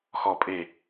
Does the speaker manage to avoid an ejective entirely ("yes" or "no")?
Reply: no